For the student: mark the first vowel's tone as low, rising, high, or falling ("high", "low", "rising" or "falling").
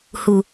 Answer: low